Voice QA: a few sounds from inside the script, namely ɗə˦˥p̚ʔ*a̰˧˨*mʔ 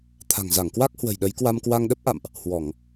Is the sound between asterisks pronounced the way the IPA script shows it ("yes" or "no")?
yes